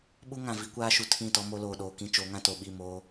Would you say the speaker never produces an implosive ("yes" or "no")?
no